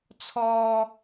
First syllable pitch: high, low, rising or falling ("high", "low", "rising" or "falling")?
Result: high